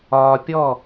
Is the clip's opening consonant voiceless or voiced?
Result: voiceless